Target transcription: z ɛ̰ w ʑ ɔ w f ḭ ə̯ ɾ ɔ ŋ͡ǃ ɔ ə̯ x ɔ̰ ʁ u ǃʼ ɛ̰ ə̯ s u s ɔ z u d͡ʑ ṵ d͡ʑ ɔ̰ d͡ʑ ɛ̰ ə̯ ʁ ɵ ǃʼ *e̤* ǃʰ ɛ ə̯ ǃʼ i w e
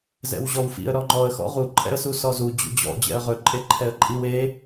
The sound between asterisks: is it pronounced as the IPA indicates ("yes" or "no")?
no